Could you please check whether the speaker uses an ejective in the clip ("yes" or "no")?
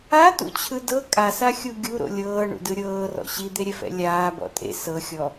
yes